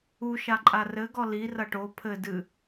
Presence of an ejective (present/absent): present